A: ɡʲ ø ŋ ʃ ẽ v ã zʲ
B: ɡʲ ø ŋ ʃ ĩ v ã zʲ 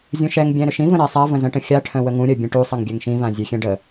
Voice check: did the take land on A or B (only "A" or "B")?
B